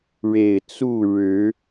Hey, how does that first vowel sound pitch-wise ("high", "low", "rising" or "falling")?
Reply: low